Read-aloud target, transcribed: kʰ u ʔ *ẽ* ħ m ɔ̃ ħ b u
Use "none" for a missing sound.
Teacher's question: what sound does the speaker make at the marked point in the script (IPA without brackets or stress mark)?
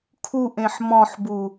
ẽ